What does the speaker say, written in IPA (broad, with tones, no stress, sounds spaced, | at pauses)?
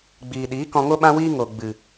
ɡ͡b iː˨ ɗ iː˨˦ k ɔ̃˧ ŋ o˦ ɓ ã˦ w iː˦ ŋ o˨ ɡ͡b ɨ˨